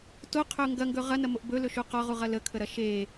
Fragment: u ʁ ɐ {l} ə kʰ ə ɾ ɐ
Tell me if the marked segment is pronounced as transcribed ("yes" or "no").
yes